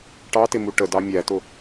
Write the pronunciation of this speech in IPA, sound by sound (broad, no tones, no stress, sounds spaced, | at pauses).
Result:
ʈ ɑ t ɪ m u ʈ ə d ɑ mʲ æ t ʊ